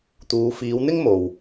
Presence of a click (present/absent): absent